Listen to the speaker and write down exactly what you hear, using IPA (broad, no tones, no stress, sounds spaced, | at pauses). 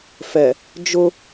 f ɛ | d͡ʒ ʊ